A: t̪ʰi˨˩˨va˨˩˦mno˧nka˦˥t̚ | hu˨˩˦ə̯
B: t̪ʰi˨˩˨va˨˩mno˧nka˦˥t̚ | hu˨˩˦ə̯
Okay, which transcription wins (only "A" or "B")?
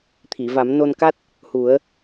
A